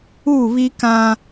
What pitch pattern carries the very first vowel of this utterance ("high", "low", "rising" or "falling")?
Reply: falling